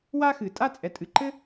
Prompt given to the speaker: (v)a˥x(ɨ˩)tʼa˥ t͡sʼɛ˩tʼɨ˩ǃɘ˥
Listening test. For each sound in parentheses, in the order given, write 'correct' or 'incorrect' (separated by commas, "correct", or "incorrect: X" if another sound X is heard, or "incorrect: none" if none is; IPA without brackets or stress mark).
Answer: incorrect: w, correct